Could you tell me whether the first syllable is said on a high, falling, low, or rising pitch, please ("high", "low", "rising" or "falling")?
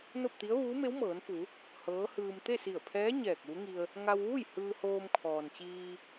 falling